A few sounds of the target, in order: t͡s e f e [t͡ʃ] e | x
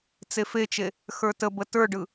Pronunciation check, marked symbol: correct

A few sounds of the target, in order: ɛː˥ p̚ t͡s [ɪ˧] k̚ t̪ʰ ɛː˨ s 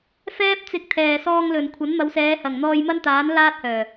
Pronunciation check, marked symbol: correct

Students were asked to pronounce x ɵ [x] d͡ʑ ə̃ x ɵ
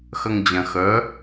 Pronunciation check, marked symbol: incorrect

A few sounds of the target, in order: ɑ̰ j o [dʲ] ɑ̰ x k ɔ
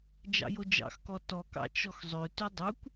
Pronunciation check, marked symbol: incorrect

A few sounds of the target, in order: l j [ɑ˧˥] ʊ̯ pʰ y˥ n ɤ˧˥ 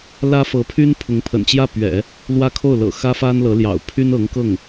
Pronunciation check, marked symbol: incorrect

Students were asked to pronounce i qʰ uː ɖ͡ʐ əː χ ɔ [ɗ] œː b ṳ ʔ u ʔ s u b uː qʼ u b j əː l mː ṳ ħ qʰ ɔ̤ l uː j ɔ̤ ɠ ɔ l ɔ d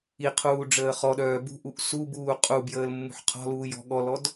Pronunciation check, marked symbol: correct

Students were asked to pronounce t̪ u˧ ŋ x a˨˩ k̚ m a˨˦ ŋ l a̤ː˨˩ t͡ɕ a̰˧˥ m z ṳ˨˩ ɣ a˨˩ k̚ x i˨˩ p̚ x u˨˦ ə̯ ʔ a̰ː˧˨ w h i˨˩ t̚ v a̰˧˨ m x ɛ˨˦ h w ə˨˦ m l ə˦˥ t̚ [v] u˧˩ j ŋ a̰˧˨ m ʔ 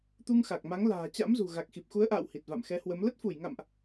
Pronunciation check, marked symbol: incorrect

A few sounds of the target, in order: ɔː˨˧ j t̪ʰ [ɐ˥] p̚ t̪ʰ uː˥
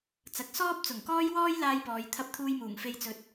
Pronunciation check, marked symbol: correct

